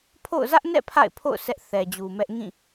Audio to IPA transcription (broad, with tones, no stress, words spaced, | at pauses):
pʰo̰˦˨ʊ̯ zä˦ʔnɛ̰˦˨ pʰa̰˦˨ɪ̯pʰo̰˦˨ʊ̯ sɛ˦ʔθɛ˨d͡ʑu˨mɛ˦ʔ ŋĩ˦˨